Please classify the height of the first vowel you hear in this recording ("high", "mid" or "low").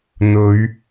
mid